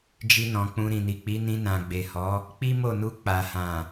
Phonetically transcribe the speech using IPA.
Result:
d͡ʒ i˧ n ɔ̃˨ k͡p ũ˧ ɾ ĩ˨ n i˨ k͡p i˨˦ n ĩ˧ n ã˨ ɡ͡b e˨ h ɔ˨˦ | k͡p i˦ m o˦˨ n u˧ k͡p a˨ h ã˨

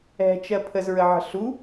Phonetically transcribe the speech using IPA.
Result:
ɛ̤ t͡ʃ ɜ pʰ ə z ɹ ə ʕ ə̤ ɬ u

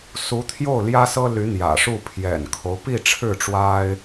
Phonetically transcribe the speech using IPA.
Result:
s u˧˥ t̪ʰ j o˥˩ ʊ̯ l j ä˥ s ɤ˥ l y˧˥ n̪ j ä̰˨˩ ʂ u˥˩ pʰ j ɛ̰˨˩ n kʰ o˦ ʊ̯ p i˥˧ ʈ͡ʂʰ ɻ̩˥˩ ʈ͡ʂ w a˥ ɪ̯

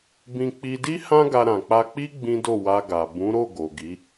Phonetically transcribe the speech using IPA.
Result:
b ĩ˧ k͡p i˧ d i˦ h ã˦ ɡ a˧ ɾ ã˨ k͡p a˧ k͡p i˦ ɡ͡b ĩ˦ d o˦˨ w a˧ ɡ a˨ b ũ˨˦ ɾ o˦˨ ɡ o˨ ɡ i˨˦

